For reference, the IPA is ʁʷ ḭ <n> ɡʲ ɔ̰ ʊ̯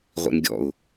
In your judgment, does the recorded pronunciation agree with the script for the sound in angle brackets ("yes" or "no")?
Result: yes